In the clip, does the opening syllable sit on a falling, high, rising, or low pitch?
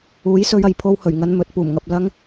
rising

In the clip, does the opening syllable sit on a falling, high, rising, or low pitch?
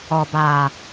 low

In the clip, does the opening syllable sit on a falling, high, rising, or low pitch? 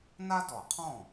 high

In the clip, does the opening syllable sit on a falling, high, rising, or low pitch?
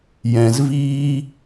low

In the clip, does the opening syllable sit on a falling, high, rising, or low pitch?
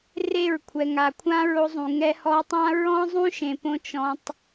falling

